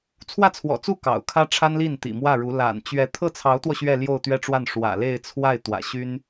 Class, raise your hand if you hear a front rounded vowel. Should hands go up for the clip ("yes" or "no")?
yes